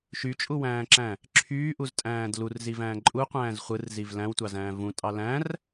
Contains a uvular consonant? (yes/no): yes